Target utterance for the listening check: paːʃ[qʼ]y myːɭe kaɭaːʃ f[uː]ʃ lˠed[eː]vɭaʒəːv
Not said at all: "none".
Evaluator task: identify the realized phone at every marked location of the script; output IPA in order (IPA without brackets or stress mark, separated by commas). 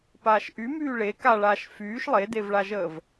ʔ, yː, e